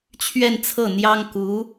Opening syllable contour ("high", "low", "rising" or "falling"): falling